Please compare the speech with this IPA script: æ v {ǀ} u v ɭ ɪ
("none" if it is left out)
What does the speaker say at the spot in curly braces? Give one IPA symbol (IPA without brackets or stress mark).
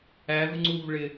ŋ͡ǀ